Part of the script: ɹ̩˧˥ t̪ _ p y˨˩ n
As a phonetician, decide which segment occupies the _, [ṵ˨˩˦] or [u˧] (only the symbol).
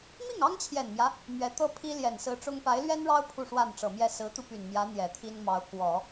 u˧